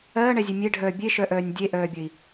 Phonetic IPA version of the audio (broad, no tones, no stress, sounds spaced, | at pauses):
ɜː ɳ ɛ zʲ e mʲ e ɖʱ œː bʲ e ʃ œ ʔ œː nʲ dʲ e ʔ œː bʲ ɘ i̯